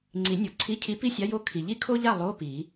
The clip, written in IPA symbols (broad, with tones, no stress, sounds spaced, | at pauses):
ŋ͡ǀ i˨˩˦ nʲ o˨˩˦ ǀʰ i˧˥˧ cʰ i˧˥ p i˥˨ sʲ a˧˥ j o˧˥˧ kʰ i˨ ʎ i˥ kʰ o˥ ʎ a˥˨ lˠ o˧˥˧ p i˨˩˦